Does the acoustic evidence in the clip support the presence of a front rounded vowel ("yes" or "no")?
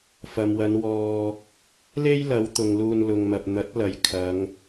no